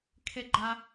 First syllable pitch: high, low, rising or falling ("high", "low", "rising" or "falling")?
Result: high